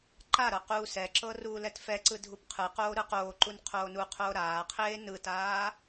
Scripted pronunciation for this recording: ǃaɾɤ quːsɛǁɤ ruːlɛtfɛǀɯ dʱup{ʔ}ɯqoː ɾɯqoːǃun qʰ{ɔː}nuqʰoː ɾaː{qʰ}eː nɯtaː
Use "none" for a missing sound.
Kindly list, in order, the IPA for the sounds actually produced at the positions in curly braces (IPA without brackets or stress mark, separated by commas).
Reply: qʰ, oː, qʰ